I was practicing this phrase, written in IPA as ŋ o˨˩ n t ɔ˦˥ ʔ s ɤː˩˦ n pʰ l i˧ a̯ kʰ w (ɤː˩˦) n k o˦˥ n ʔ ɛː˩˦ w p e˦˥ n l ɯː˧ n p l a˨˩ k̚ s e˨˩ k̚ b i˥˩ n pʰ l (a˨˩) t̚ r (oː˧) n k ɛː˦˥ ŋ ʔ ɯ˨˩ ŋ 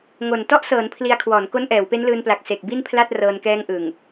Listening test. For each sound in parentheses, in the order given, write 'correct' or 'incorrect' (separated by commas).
incorrect, incorrect, incorrect